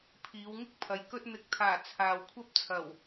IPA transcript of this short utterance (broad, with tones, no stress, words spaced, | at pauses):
pʰiː˨˧wŋɪ˥k̚pʰɐ˨˧j kɵ˧t̚n̪ɪ˨˥k̚t̪ʰaː˨˩ t͡sʰaː˨wkʷʰɐ˥p̚ t͡sʰɐ˨˩w